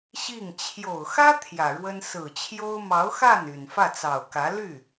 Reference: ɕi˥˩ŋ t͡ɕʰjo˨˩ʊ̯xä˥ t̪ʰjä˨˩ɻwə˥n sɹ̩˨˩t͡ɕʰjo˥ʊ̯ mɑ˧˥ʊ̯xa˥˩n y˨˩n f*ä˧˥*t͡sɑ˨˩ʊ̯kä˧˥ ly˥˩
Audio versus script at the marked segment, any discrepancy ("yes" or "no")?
yes